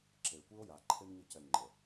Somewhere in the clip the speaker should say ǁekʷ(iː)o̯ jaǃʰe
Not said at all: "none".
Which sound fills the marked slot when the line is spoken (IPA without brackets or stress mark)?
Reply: i